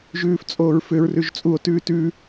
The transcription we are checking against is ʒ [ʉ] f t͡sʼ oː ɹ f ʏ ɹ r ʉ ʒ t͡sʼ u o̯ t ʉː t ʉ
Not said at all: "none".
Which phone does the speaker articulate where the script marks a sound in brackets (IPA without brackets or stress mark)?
ʉː